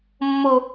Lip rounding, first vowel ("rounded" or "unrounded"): rounded